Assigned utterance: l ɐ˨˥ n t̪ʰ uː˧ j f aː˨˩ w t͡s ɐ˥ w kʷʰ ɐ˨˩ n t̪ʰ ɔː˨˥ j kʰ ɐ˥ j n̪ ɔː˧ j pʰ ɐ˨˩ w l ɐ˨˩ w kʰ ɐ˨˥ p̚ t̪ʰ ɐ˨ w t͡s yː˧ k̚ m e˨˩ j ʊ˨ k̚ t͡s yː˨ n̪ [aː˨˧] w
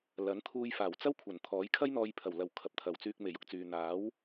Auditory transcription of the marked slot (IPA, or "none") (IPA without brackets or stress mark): aː˨˥